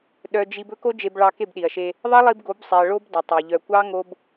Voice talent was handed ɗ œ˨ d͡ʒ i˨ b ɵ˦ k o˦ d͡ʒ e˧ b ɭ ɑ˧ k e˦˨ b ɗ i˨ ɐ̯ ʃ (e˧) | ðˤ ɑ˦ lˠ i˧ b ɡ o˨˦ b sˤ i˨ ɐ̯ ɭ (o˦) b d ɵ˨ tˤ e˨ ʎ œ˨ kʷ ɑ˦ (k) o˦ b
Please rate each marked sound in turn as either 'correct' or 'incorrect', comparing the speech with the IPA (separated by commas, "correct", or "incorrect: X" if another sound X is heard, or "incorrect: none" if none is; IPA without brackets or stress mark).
correct, correct, incorrect: ŋ